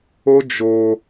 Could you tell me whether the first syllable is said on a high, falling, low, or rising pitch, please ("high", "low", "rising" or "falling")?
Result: high